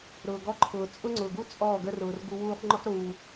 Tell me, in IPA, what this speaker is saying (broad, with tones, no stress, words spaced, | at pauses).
ɾʊː˨ɡɔ˧ǃʰʊː˨ t͡sʼʊ˦ŋ͡ǀʊː˨ɡu˦ t͡sʼɔː˦˨ɡə˦rʊː˨rɡu˧ wuː˧χŋ͡ǃʊ˦χɾuː˨